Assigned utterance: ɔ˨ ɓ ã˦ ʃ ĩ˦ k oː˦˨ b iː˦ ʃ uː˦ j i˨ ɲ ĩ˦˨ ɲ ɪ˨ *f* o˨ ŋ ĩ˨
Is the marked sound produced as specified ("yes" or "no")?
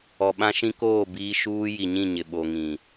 no